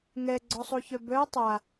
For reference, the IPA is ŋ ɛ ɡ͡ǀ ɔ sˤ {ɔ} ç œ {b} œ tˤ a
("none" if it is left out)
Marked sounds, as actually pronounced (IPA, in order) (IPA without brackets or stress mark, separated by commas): o, b